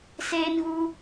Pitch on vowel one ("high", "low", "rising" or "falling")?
high